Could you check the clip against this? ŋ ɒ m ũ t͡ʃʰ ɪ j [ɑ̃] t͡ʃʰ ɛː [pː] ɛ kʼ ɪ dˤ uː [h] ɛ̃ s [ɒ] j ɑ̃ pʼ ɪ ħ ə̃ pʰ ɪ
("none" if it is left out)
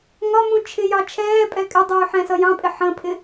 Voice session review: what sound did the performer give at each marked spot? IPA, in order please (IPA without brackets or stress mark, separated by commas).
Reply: ɑ, pʼ, ħ, ʌ